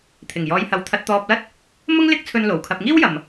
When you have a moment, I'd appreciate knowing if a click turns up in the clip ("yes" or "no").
no